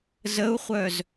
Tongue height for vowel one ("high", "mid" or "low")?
mid